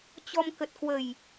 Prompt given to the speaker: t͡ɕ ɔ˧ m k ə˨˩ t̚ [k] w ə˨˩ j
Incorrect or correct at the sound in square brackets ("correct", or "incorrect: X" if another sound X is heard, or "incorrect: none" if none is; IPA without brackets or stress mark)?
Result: correct